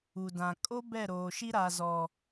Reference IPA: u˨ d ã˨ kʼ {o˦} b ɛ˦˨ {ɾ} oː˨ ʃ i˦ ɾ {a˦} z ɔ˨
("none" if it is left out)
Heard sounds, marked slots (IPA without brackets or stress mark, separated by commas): o˦, ɾ, a˨